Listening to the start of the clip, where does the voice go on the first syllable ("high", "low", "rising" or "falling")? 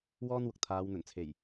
high